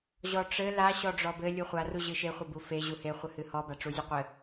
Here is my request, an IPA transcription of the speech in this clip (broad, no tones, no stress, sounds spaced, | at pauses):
ʑ ɔ ʈ͡ʂ ɘ l a ɕ ɔ ɖ͡ʐ ɔ b ɘ lʲ u χʷ a r u ʑ ɨ ʃ e χʷ ɘ b u f e ʑ u h e χʷ ɨ h ɨ h ɔ b a ʈ͡ʂ u zʲ u qʷ ɘ